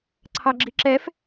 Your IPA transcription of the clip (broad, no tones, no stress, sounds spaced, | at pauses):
ǀʰ ɑ ɡ͡ǁ i ǁ ɛ f